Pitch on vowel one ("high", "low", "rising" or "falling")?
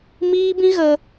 high